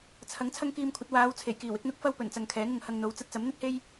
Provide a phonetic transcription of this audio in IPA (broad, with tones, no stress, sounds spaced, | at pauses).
t͡sʰ ɐ˨˥ ŋ t͡sʰ ɐ˥ ŋ k iː˧ m kʷʰ ɐ˨˥ t̚ w aː˨˧ w t͡sʰ e˨˩ j k iː˨˩ w ɪ˨˥ k̚ n̪ ʊ˥ k̚ f ɐ˥ w p ɵ˨˩ n t͡s ɐ˨ ŋ kʰ ɛː˨˥ ŋ ʊ˨ ŋ h ɐ˧ ŋ n̪ o˨˧ w t͡s ɐ˧ t̚ t͡s ɐ˨˥ m n̪ ɵ˥ t̚ h e˥ j